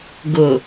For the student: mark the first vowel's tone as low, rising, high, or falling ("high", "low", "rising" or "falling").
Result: low